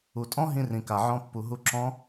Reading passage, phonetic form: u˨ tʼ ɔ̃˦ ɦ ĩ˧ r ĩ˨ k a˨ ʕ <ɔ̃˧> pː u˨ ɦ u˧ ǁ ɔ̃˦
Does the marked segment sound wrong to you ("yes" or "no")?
no